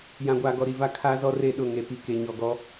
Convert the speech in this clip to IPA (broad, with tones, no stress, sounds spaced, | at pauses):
j ã˨ ɡʷ aː˨ ɡ ɔ˨ ɾ i˨ v a˦ kʰ aː˦ z ɔ˦ r e˦˨ ɗ ʊ˦˨ ŋ e˨ p i˨ k e˨ ɲ ɔ˨ ɡ ɔ˦